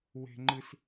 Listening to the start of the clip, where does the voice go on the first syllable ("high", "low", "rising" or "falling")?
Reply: high